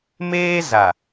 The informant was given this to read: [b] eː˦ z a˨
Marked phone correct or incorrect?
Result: incorrect